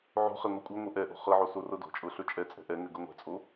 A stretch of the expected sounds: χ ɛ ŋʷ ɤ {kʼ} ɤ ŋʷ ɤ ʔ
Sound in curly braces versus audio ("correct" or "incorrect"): incorrect